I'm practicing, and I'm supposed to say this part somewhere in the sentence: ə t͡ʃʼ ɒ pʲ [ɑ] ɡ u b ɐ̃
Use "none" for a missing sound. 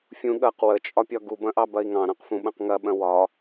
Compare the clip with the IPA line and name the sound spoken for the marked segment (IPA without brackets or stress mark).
ɒ